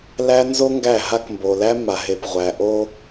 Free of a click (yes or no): yes